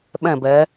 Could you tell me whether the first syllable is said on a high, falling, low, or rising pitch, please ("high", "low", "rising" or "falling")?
falling